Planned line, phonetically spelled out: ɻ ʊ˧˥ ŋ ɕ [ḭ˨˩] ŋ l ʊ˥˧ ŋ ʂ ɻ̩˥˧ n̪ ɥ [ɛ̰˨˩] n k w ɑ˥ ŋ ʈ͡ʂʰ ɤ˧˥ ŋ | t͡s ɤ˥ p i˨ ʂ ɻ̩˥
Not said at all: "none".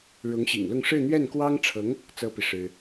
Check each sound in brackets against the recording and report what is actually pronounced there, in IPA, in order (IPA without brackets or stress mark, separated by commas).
ḭ˨˩, ɛ˥˩